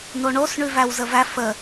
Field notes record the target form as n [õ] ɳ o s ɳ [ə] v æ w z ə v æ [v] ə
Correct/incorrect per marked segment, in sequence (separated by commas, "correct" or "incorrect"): incorrect, incorrect, incorrect